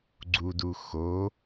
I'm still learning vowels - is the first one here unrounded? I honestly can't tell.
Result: no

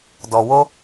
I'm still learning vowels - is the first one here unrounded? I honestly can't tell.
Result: no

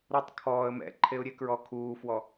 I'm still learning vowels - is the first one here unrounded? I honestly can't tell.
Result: no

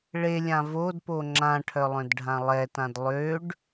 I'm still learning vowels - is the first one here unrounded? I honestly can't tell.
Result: yes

